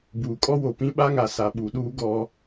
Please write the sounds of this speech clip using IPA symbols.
b uː˨ kʼ ɔ˦ w o˨ p ĩ˦ ɓ a˦ ŋ a˨ s a˨ ɓ u˨ ɗ uː˦ ɡ ɔ˦

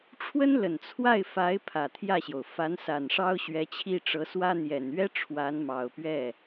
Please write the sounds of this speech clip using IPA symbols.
ʈ͡ʂʰ w ə˥ n l ə˨˩ n t͡sʰ w a˥˩ ɪ̯ f a˧˥ ɪ̯ pʰ ä˨˩ t̪ʰ j ä˥˩ ɕ j o˩ ʊ̯ f a˧˥ n s a˨˩ n ʂ ɑ˥ ʊ̯ ɕ ɥ ɛ˧˥ t͡ɕʰ i˥˩ ʈ͡ʂ ɤ˧˥ s w ä˥ n̪ j ɛ˨˩ n ɥ ɛ˥ ʈ͡ʂʰ w a˧˥ n m ɑ˨˩ ʊ̯ p ɥ ɛ˥˩

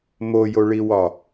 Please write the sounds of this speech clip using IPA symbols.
m o j o ɭ i w ɒ

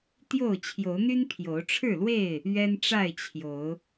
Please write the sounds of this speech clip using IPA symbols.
t̪ j o˥˨ ʊ̯ t͡ɕʰ j o˨˦ ʊ̯ n̪ y˦ n pʰ j o˨˦ ʊ̯ ʈ͡ʂʰ ɻ̩˥˨ l w e˥˨ ɪ̯ | ɥ ɛ˦ n ʈ͡ʂ a˥˨ ɪ̯ t͡ɕʰ j o˨˦ ʊ̯

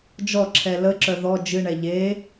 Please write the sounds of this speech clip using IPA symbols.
d͡ʒ ɔ ǁʰ ɛ l ə ǁ œ ð ɔ d͡ʒ ɨ ɳ ɛ ʎ e

